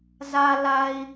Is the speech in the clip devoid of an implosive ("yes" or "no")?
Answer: yes